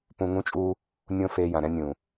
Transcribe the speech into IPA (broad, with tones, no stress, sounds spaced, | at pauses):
p ũ˧ ŋ ũ˦ t͡ʃʼ uː˦ | nʲ õ˦ f eː˧ j ã˨ ɾ ɛ̃˦ nʲ ũː˨